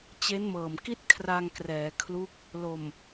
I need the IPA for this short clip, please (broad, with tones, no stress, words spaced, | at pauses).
t͡ɕe˦˥nmɤː˨˩mki˥˩t̚ kʰra˧ŋkrɛː˩˦kʰlu˦˥k̚ | lo˨˩m